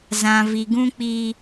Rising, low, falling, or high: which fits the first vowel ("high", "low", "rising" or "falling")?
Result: low